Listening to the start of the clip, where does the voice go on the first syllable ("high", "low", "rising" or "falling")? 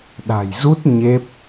low